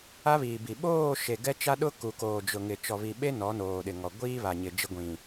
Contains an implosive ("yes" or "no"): yes